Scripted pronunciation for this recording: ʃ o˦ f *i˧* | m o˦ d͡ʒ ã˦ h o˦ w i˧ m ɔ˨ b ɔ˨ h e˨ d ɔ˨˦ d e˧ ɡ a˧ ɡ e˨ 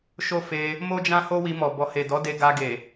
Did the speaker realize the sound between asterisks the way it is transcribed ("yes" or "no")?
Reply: no